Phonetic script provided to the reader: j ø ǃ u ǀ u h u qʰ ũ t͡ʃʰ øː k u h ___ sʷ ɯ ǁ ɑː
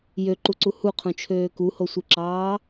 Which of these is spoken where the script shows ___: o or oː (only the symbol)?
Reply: o